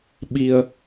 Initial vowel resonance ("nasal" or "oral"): oral